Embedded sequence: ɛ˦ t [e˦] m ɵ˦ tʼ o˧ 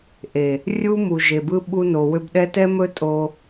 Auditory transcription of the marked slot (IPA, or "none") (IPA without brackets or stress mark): ɛ˦